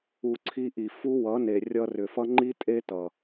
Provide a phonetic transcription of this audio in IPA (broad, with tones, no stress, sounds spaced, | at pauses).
u˨ ǀʰ i˧ ʔ i˨ f u˦ w ʌ˨˦ n e˨ rʲ ʌ˧ r ʏ˨ f ʌ˦ ŋ͡ǃ i˦ tʼ e˦ t ʌ˨